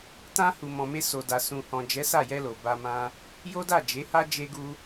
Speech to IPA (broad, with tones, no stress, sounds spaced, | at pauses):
t ã˧ h u˨ m ɔ̃˨ m e˧ s o˨ d a˨ s ũ˨ h ɔ̃˨ d͡ʒ ɛ˨˦ s a˦˨ j ɛ˧ l o˨ b a˧ m ã˦ | j o˦ d a˦˨ d͡ʒ e˨˦ h a˦ d͡ʒ e˦ ɡ u˦